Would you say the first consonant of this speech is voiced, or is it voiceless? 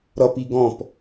voiced